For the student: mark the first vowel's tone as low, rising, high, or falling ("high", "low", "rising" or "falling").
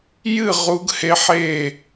falling